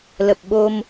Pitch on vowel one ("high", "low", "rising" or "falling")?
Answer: low